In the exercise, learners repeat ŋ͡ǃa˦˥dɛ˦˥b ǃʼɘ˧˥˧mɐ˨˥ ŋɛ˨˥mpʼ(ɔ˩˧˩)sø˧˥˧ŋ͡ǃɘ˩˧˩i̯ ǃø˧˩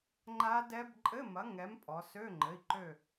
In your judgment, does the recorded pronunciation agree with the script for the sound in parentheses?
no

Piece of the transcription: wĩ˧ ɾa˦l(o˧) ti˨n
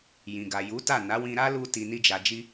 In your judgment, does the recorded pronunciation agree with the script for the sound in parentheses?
no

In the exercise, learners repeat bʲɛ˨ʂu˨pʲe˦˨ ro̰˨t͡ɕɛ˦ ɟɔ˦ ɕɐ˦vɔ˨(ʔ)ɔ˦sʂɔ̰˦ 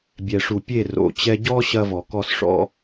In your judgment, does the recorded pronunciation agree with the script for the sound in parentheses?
no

